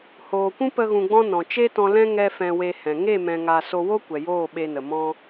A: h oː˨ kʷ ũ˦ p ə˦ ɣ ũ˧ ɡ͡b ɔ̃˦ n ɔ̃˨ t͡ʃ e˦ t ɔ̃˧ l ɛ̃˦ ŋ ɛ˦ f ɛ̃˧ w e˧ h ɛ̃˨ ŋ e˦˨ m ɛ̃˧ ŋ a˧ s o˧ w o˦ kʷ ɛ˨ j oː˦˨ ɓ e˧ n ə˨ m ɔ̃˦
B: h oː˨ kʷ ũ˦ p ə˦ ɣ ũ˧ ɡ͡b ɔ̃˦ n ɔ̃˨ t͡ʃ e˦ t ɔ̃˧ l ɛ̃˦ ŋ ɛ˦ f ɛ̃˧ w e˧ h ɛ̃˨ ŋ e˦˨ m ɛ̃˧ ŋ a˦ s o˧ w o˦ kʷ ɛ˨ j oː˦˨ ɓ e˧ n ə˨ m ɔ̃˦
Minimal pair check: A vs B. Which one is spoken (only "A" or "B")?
A